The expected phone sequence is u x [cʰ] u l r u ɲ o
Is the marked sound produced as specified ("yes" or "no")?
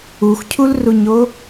yes